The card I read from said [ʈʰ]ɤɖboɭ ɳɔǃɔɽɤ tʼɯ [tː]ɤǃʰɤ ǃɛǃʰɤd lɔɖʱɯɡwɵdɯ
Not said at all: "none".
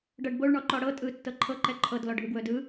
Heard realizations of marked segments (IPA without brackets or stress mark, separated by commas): ɖ, tː